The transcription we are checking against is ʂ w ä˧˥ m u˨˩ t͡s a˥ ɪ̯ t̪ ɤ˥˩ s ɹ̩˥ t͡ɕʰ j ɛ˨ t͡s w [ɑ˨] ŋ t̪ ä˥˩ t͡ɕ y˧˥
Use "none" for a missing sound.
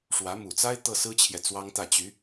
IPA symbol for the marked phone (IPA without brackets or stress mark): ɑ˥